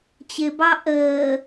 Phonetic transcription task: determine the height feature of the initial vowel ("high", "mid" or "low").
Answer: high